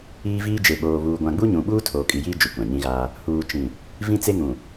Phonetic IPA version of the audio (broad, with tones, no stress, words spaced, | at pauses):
iː˦viː˦d͡ʒe˨ ɓoː˨βuː˨ ɡʷã˨ɡ͡bu˦ɲũ˨ɓuː˦ tʰoː˨kʼi˨jiː˦ d͡ʒu˨kʷã˨ɲĩ˦ɣaː˦ | huː˨t͡ʃĩ˨ | vĩ˦t͡se˦ŋũ˨